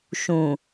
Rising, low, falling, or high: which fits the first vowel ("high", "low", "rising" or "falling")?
low